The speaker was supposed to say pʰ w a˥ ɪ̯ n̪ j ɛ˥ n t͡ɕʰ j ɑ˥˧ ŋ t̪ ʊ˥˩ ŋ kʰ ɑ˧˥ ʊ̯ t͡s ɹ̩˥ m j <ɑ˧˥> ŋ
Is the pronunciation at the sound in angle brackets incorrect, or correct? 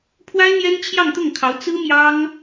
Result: incorrect